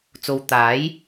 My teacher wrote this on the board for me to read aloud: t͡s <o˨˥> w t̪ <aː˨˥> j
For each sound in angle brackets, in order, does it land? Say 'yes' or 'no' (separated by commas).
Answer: no, yes